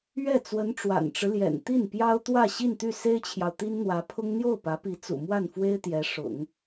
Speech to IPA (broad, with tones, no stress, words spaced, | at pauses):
ɥɛ˥˩ t͡swə˧˥nʈ͡ʂwa̰˨˩nʈ͡ʂɻ̩˦ljɛ̰˨˩n t̪i˥˩npjɑ˥ʊ̯t̪wä˥˧ ɕi˥˧nt̪y˥˩se˥ɪ̯t͡ɕʰjɑ˨ʊ̯ t̪i˥nn̪wä˧˥pʰʊ˥ŋ n̪jo˥˩ʊ̯pä˧˥pi˧˥ t͡sṵ˨˩mwa˥˩nfwe˥ɪ̯ t̪jɛ˧˥ ʂʊ̰˨˩˦ŋ